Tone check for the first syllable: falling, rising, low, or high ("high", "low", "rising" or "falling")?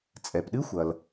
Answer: low